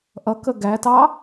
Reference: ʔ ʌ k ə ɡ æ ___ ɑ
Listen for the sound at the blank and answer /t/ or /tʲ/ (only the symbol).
t